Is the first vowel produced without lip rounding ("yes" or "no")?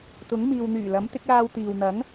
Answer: no